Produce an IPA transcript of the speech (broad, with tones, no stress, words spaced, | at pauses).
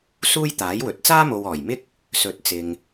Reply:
suː˥jt̪aː˨˥jwɵ˨t̚ t͡saː˥mo˨wɔː˨˩jmɪ˥k̚ | sɵ˨˥t̚ t͡sɪ˨ŋ